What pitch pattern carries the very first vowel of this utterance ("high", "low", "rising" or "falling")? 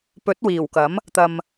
rising